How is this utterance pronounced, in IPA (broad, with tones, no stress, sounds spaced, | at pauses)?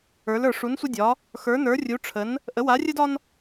ə˞˧˥ l ə˞˧ ʂ u˧˥ n sʷ ə˥ dʲ ɒ˧˥ | x ə˞˧˥ n ə˞˧˥ rʲ u˧˥ ʈ͡ʂʰ ə˧˥ n | ʔ ə˧˥ w a˧˥ rʲ ə˥ d ɒ˥ n